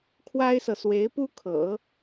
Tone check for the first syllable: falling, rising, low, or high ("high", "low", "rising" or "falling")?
high